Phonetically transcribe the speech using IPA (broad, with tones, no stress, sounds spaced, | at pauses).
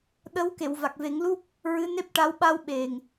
ɗ ə˧˥ w k e˨˩˨ w v a˨˩ k̚ v e˨˩˦ ŋ l u˦˥ p̚ | ɹ ɨ˧˥ n e˦˥ p̚ ʈ a˧˥ w ɓ a˧ w ɓ e˨˩ ŋ